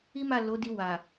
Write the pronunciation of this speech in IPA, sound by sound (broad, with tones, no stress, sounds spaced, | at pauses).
i˦ m a˦˨ l o˨˦ d i˧ w a˨